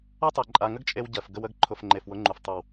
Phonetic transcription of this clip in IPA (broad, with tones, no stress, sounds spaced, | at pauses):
a˦ tˤ ɜ˨ ǃʼ a˨ ŋ ə˦ ɡ t͡ʃʼ e˧ w ɟ ɜ˨ f ɡ ə˧ w ə˧ ɡ ǃʰ ʊ˨ f ŋ͡ǃ e˨ f w ʊ˨˦ ŋ͡ǃ u˨ f tˤ ɨ˨ w